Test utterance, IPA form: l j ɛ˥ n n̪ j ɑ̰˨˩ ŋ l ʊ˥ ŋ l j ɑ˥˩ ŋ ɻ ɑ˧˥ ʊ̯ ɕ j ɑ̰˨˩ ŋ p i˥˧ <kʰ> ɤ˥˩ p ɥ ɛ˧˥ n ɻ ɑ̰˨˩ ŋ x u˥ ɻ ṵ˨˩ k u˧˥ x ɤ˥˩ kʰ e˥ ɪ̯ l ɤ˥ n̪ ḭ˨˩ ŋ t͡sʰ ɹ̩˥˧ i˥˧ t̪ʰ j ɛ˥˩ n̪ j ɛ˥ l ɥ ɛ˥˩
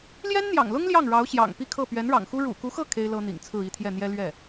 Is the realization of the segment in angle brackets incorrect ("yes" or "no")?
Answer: no